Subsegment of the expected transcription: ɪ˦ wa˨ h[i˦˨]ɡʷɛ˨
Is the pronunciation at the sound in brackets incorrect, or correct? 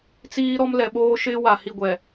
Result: correct